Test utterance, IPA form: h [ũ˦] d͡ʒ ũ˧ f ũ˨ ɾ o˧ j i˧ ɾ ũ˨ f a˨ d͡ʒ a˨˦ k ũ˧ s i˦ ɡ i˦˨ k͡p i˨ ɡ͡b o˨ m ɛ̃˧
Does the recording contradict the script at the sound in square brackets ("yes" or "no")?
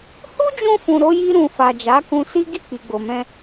yes